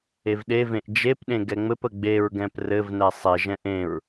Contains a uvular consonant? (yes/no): no